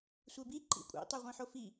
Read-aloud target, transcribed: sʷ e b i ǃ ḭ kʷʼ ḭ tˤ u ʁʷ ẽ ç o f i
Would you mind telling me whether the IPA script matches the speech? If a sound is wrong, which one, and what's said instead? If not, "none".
ç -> ħ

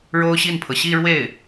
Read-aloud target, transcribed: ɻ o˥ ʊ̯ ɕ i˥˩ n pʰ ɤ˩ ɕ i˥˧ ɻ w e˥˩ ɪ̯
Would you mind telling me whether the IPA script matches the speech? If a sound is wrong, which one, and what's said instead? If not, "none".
none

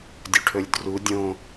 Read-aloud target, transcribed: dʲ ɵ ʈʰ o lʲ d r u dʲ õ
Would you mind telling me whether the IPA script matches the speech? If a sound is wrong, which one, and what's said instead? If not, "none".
o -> ɵ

